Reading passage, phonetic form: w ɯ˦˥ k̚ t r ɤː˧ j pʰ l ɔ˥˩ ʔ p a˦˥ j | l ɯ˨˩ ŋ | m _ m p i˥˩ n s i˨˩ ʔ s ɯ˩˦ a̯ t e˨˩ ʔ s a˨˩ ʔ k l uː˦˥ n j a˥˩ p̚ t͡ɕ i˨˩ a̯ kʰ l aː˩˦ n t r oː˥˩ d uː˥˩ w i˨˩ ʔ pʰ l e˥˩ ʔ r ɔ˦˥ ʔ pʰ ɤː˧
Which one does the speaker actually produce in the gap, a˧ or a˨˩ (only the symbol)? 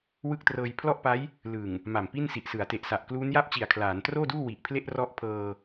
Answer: a˨˩